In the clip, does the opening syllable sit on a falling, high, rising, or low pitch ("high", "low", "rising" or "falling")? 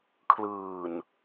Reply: low